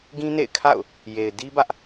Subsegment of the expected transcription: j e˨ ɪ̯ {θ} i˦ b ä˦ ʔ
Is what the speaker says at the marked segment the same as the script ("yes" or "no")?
no